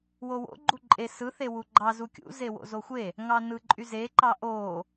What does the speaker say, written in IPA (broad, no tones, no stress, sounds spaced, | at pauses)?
w o w o̰ ɡ͡ǃ u ǃʼ e s ɯ θ e w u ɡ͡ǃ ɑ z u kʲ ṵ z e w o̰ z o xʷ e | ŋ ɑ n ɯ ǃʼ y z e ǃ ɑ ʔ o